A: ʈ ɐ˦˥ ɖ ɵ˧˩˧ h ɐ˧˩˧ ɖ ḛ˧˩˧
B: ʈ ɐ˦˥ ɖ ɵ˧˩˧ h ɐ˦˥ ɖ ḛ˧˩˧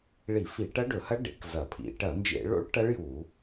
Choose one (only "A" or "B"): B